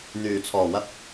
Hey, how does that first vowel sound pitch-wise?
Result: low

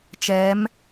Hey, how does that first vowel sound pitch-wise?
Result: rising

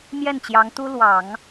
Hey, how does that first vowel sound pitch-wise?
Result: falling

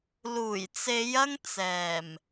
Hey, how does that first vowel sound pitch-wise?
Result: low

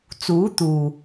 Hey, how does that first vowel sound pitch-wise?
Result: rising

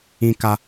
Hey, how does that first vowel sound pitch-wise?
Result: high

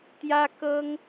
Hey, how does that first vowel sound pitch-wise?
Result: high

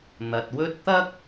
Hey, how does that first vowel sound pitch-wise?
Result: low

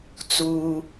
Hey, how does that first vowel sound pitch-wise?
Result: low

